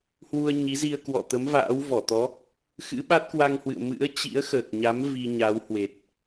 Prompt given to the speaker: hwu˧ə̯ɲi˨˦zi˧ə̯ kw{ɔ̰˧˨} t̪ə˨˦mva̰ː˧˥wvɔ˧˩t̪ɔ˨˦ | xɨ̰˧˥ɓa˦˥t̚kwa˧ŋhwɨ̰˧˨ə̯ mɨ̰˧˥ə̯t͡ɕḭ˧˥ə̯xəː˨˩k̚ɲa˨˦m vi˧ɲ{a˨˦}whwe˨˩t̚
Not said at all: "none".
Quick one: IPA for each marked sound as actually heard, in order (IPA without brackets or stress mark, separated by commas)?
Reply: ɔ̰˧˨, a˨˦